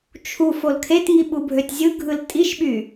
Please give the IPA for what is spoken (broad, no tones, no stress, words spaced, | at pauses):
t͡ʃʰuf olkʰetŋi ɓubʱøtʲzʲɯɡʱɯl tʼiʃɓy